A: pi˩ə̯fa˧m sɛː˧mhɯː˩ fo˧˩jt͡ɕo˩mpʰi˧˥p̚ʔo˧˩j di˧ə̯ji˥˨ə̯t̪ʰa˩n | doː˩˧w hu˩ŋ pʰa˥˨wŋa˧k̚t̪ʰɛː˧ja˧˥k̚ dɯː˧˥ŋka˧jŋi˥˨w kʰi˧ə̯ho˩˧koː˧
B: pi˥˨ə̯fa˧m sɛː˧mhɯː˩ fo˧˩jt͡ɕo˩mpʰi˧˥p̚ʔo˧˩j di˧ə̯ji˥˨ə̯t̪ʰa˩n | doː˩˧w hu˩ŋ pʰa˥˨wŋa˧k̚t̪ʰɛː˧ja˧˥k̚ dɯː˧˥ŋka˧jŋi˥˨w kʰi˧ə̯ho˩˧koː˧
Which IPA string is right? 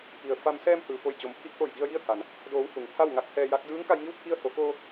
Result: A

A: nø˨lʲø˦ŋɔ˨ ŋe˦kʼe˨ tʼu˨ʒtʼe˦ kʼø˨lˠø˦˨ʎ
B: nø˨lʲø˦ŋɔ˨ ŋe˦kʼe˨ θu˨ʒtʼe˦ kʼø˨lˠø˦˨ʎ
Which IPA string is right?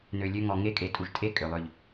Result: A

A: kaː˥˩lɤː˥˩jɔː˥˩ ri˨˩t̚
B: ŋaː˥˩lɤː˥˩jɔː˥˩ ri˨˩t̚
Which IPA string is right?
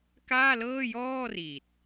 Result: A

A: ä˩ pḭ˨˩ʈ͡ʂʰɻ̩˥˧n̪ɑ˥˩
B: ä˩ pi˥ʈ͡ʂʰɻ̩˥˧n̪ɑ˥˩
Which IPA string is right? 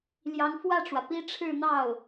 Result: B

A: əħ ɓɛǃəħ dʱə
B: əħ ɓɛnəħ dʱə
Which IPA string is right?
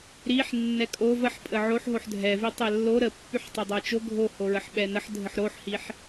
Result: B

